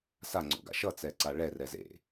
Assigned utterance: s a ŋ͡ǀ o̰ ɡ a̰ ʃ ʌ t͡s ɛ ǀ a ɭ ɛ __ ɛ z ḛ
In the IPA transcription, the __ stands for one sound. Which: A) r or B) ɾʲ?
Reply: A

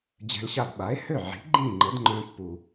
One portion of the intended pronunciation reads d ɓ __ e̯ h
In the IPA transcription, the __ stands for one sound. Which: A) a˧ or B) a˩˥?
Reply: B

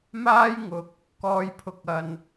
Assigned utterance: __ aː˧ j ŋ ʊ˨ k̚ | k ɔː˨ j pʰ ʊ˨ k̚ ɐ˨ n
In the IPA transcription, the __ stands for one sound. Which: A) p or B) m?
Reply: B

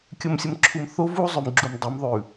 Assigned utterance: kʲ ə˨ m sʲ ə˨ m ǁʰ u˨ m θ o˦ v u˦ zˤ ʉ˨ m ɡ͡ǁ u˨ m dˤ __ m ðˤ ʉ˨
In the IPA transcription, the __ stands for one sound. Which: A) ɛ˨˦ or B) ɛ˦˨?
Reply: A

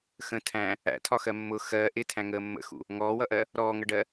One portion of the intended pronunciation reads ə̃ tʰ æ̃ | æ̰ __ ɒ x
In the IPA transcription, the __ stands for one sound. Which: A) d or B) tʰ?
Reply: B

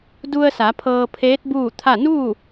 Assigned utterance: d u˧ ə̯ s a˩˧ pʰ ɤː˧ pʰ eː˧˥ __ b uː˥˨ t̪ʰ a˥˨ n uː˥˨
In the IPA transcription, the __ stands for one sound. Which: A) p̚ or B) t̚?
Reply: B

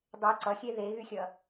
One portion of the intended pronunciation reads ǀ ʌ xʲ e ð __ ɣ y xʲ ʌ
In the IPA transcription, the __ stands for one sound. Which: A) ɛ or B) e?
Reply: B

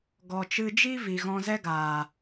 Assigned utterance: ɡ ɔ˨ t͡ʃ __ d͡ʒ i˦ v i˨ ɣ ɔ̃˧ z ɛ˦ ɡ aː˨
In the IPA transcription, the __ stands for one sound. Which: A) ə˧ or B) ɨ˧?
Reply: B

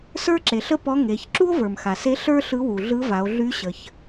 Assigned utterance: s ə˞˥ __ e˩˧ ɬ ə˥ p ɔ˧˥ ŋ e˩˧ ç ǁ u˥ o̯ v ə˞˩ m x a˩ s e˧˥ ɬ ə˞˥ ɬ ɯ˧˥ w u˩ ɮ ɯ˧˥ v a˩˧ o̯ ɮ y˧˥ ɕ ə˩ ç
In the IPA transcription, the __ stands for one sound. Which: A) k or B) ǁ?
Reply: B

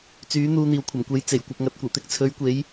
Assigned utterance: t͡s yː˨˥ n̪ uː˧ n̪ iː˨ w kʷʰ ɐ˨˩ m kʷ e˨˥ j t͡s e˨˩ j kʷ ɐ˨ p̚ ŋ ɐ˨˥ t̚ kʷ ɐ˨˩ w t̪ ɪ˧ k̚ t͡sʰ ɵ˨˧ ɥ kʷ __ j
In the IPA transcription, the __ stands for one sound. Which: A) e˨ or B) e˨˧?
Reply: B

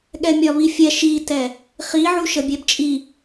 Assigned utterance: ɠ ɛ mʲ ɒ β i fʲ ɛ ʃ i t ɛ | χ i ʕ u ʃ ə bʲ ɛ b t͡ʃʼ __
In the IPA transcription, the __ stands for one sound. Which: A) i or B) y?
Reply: A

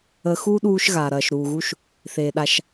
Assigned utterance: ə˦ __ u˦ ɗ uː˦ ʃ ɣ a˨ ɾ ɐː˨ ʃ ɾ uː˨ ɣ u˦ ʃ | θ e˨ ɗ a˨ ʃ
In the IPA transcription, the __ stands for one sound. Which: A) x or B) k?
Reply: A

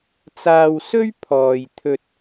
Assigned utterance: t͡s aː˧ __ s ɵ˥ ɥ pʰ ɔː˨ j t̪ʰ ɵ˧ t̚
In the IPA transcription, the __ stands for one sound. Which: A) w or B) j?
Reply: A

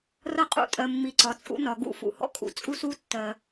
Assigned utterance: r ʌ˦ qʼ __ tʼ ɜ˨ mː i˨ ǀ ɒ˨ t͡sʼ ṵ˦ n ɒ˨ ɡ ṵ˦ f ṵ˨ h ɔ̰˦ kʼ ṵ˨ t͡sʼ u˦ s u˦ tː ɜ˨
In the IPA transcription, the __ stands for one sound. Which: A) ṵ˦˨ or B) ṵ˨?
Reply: A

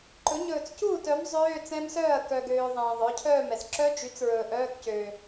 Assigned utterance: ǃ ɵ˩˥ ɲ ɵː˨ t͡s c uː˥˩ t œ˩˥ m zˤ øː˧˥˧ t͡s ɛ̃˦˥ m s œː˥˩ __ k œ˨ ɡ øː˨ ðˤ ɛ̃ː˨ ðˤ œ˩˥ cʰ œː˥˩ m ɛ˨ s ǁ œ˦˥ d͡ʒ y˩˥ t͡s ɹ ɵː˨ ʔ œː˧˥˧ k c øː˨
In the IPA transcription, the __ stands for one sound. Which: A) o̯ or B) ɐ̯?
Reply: B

